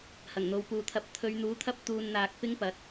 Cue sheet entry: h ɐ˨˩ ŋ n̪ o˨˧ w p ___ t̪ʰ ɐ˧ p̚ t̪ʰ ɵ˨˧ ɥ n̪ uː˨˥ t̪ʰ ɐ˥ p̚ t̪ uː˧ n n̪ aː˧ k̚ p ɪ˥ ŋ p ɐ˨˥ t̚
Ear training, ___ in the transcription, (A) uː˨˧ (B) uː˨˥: A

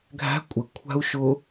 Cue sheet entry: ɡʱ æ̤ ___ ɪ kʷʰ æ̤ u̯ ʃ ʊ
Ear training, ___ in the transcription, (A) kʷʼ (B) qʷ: A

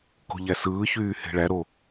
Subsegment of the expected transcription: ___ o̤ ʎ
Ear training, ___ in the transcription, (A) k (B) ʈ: A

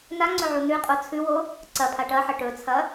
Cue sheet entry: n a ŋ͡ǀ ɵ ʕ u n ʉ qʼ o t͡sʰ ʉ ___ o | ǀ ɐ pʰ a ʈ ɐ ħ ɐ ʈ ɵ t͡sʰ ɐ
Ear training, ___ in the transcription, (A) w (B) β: A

